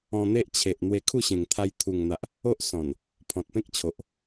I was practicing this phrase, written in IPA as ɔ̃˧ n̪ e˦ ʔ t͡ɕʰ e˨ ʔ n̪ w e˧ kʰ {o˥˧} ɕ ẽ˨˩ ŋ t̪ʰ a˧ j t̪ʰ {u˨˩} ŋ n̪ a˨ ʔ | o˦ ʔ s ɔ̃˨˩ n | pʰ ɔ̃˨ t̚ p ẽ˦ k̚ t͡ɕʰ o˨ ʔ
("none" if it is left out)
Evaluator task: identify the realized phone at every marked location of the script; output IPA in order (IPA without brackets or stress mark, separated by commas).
u˥˧, u˨˩